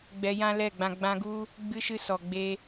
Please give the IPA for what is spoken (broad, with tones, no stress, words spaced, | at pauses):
ɡ͡bɛ˧jã˦lɛ˦˨ɡ͡bã˧ ɡ͡bã˧ɡu˦ | ɡ͡bɨ˧ʃɨ˧ sɔ˨ ɡ͡be˧